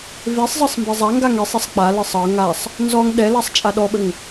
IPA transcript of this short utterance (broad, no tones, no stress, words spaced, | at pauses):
vesˤzˤɤsˤ mbezˤaŋɡaŋ esˤesˤ k͡palɤsˤ ɤ ŋasˤ | nzɔŋ ɗɛlasˤ t͡ʃʼaɗɔɓəŋ